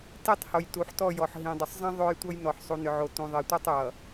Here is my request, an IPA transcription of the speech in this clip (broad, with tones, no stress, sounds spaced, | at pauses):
t i˦˨ tˤ h o˨ j t u˨ ħ t ɔ˦˨ j ɔ˨ ħ ɦ ĩ˨ dˤ ʏ˨ sˤ zˤ ĩ˦ ðˤ o˦ j tʷ ʌ˦ j n ɔ˨ ħ sˤ u˨ n ʏ˨ ʕ o˨ t ũ˨ ðˤ i˨ tʷ i˦˨ tˤ j ʌ˨